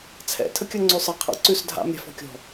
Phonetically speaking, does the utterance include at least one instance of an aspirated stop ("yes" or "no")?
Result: yes